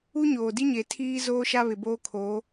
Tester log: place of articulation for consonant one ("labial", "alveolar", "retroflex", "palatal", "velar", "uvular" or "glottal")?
palatal